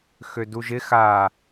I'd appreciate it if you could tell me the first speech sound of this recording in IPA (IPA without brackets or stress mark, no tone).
x